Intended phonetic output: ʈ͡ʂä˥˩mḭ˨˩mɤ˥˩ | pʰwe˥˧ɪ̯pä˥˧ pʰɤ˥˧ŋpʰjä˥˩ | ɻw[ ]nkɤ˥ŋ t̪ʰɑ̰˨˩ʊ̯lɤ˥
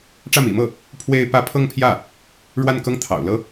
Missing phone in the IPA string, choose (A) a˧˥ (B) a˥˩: B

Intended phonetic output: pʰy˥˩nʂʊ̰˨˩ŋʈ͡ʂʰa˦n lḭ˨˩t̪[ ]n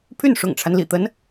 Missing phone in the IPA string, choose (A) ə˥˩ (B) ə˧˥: B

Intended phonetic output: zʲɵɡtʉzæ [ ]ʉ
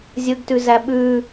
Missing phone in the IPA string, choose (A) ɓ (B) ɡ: A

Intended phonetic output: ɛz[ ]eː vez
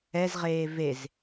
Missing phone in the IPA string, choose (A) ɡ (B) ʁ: B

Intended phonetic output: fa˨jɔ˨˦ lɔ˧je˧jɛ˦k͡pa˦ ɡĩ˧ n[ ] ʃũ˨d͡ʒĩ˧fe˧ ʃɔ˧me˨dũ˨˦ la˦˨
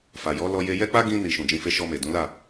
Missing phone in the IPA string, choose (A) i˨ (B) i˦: A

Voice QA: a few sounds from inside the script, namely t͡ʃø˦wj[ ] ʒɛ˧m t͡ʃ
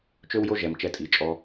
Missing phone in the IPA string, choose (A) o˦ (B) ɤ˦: A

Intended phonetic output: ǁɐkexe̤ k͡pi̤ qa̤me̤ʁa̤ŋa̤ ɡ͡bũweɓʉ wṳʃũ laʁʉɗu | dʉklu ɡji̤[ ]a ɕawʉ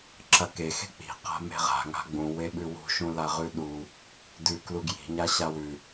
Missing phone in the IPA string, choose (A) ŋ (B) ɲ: B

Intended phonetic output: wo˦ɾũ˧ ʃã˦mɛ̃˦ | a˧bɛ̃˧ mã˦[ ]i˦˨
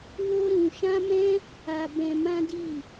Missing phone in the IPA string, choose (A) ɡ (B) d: B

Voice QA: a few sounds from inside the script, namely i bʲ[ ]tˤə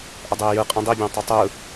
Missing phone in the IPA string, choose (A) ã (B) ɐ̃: A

